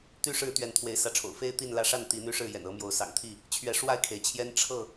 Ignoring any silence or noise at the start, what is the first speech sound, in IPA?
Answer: t̪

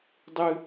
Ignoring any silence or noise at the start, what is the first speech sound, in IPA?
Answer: dˤ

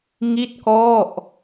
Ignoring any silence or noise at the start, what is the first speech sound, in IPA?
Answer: ŋ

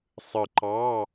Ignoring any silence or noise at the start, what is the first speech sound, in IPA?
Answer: sˤ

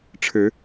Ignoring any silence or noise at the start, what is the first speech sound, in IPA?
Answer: ʈ͡ʂʰ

